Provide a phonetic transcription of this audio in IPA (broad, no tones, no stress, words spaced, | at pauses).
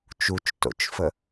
t͡ʃut͡ʃto̰t͡ʃfə